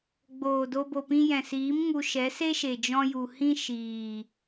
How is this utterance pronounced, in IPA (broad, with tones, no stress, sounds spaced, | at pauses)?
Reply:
ɡ͡b oː˨ d o˧ b o˨ p ĩ˧ j ɛ̃˨ s iː˨˦ m ŋ u˧ ʃ ɛ˨˦ s e˦ ʃ e˨ d͡ʒ ɔ̃˧ j u˨ h ĩ˦ ʃ iː˨